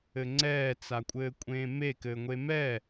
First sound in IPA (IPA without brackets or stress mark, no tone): ɘ